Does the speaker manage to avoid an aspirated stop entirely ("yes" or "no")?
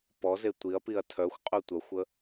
no